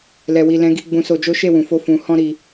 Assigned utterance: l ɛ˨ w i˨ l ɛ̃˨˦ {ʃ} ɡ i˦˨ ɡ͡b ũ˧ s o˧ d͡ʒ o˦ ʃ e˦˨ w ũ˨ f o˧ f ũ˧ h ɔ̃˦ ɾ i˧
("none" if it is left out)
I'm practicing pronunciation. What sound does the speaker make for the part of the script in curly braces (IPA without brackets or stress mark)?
none